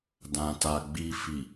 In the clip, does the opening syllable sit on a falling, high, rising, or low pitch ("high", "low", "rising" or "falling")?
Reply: low